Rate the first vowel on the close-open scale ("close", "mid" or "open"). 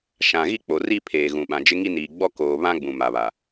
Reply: open